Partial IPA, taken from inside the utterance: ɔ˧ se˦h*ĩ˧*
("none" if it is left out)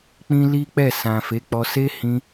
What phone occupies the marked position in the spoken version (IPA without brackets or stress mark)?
ĩ˧